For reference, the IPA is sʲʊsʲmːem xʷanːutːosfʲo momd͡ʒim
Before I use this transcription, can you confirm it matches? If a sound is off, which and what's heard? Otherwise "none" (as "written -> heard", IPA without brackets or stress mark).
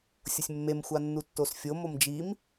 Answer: none